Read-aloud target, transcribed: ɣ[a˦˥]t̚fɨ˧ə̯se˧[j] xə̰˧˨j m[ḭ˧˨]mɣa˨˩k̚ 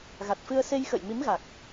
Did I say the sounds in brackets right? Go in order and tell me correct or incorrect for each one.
incorrect: a˨˩, correct, incorrect: i˨˦

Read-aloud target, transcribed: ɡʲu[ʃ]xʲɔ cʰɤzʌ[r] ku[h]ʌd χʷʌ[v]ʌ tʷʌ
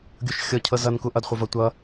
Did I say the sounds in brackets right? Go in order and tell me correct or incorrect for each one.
correct, incorrect: n, incorrect: ʔ, correct

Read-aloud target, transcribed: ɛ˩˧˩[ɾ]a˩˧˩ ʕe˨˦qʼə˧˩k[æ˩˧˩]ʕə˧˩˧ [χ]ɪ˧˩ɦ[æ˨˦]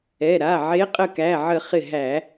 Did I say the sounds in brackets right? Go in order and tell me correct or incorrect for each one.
correct, correct, correct, incorrect: æ˧˩˧

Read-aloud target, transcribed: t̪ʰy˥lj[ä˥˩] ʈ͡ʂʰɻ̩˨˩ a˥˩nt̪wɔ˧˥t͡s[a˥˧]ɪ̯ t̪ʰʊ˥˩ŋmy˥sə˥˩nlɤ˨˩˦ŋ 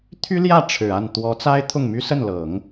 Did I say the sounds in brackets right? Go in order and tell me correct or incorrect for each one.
correct, incorrect: a˥

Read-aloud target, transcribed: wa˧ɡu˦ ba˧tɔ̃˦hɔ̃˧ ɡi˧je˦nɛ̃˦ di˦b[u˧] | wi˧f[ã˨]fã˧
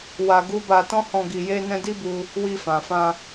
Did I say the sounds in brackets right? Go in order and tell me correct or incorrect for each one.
correct, correct

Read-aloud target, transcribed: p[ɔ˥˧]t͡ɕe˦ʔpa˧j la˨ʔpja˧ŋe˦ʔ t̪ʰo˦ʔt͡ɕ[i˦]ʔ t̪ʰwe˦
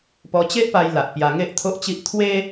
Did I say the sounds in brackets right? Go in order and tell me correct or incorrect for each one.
incorrect: ɔ˧, correct

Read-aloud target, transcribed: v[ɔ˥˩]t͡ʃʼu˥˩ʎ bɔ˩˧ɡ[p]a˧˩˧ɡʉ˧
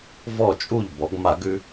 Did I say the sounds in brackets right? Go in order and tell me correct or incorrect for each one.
correct, incorrect: m

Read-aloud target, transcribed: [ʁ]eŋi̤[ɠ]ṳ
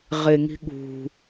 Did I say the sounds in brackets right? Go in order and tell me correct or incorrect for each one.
correct, correct

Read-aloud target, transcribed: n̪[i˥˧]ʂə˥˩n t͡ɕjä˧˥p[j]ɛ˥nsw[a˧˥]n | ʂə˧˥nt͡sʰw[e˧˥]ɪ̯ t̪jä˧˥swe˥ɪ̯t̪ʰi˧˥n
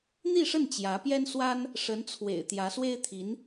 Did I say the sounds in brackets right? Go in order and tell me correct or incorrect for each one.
correct, correct, incorrect: a˥, incorrect: ḛ˨˩

